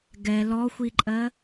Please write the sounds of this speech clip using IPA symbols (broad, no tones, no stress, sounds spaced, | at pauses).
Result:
ɡ ɛ l ɔ xʷ i ǃʼ ɜ